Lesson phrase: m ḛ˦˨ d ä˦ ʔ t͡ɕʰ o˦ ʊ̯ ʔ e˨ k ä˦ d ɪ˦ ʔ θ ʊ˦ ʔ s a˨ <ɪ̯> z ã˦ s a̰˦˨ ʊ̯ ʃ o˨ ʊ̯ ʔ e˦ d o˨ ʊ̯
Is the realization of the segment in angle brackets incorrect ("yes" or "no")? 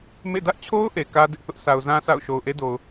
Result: yes